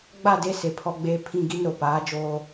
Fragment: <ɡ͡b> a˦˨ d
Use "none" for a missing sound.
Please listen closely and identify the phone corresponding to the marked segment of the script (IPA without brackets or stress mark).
ɡ͡b